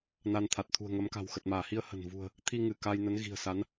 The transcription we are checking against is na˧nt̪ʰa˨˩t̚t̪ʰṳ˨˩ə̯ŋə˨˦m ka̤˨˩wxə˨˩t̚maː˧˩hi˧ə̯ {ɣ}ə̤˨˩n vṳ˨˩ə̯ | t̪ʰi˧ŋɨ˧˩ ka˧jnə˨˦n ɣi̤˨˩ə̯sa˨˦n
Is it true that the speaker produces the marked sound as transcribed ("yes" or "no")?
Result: no